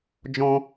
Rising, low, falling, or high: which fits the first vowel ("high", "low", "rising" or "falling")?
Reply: high